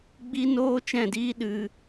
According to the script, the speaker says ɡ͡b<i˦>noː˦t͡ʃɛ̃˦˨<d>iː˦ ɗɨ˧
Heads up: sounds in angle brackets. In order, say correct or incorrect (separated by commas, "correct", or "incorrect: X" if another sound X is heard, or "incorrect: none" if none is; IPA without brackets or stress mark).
correct, correct